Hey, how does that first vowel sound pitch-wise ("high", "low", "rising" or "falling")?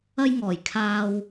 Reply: high